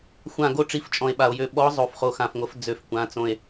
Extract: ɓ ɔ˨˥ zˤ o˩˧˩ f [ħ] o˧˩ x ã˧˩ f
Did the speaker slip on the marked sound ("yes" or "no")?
yes